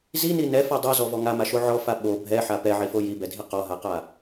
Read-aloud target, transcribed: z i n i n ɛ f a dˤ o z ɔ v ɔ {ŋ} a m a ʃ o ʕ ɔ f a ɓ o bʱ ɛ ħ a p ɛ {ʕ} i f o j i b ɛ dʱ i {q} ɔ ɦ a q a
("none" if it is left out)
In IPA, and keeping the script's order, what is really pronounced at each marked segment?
ŋ, ʕ, q

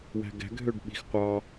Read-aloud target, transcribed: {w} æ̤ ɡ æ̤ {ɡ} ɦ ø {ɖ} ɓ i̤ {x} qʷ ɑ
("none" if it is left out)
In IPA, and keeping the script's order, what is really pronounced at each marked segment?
w, ɡ, ɖ, x

